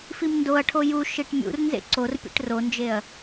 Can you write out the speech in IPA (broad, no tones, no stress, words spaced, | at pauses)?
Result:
fimndoɐ̯ʈʰo ju ʃiʈmʲṵrnzḛ ǀorpʲḛʈ rond͡ʒeɐ̯